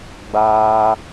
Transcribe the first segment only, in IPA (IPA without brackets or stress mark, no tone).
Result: ɡ͡b